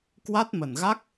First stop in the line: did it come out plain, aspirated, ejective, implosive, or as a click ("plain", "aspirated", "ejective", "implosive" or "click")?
plain